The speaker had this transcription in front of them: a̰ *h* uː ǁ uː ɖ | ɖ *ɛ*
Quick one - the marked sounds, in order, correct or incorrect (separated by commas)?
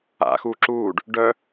incorrect, incorrect